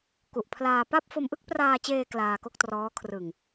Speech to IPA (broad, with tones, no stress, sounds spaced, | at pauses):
k u˨˩ ʔ pʰ l aː˧ p a˥˩ p̚ f o˧ m ʔ ɯ˥˩ k̚ p r aː˧ t͡ɕ eː˧ k l aː˧ k o˥˩ k̚ t r ɔː˦˥ kʰ r ɯ˨˩ ŋ